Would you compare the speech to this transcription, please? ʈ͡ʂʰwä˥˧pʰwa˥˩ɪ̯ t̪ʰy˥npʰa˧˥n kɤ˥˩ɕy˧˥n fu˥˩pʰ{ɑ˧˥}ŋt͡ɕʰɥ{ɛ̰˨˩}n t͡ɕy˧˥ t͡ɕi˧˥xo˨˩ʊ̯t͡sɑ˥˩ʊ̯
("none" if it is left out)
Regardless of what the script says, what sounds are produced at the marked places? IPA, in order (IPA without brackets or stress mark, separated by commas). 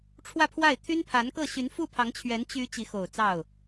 ɑ˧˥, ɛ˧˥